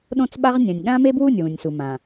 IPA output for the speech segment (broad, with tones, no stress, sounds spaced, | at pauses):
ɗ õ˦ t͡s ɓ a˦ ʁ nʲ ã˨ nʲ ɠ ã˦ m e˦ b w u˦˨ nʲ w ũ˨ nʲ s u˨ m ã˨